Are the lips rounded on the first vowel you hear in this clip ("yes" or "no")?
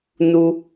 yes